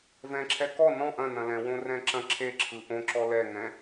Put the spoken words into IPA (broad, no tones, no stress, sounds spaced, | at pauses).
v ɛ̃ ǁʰ ɛ k ɔ n ɔ̃ ʔ ɐ̃ n ɐ̃ l ɛ̃ w õ r ɛ̃ ǁ ɐ̃ ǁʰ e ǁʰ ɯ ʔ õ ǁ ɔ l ɛ ŋ ɛ̃